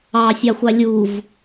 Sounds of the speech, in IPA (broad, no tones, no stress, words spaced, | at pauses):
ɑsʲɑxʷɑ lʲuv